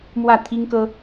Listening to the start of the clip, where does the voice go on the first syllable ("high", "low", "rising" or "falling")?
falling